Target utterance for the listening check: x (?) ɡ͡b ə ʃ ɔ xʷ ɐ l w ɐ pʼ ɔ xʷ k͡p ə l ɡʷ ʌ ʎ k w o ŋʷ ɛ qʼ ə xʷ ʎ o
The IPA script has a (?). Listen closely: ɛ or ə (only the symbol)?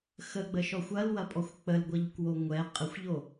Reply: ə